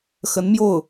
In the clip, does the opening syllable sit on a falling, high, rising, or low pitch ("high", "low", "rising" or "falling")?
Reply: rising